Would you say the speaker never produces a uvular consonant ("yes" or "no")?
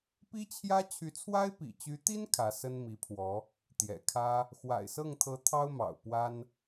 yes